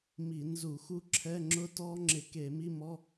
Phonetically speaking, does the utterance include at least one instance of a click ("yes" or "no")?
yes